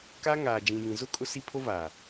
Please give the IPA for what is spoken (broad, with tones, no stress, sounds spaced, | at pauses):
k a˦ ŋ aː˨ d͡ʒ ĩ˨ j ĩ˨ z ʊ˦ kʼ ʊ˦ s i˦ pʰ o˦ v aː˨